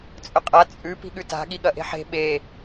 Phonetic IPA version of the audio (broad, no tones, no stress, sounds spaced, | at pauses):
t͡sʼ ɵ qʼ a t͡sʼ ʉ p i̤ ɠ ʉ t a̤ ɠ i ɠ ɐ ʔ e̤ ħ e̤ ɓ e